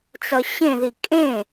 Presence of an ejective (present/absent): present